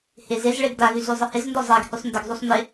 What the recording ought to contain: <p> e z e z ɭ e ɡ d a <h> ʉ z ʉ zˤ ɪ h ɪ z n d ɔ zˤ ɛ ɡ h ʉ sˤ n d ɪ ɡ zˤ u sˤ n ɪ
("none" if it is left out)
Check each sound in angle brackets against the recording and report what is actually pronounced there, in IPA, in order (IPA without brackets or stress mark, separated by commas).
h, ɣ